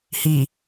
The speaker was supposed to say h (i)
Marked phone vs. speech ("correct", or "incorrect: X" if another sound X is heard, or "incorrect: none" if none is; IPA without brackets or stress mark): correct